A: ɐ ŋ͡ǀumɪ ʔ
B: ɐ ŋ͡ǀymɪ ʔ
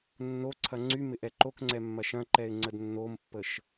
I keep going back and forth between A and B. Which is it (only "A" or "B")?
B